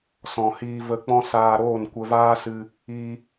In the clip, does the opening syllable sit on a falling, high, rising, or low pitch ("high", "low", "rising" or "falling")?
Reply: low